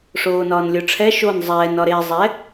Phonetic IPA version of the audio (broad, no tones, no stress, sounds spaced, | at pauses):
ʂ oː n ɒː n lʲ o ʈ͡ʂʰ ɛ ʃ o n zˤ ɛː n ɒ ɾ e zˤ ɛ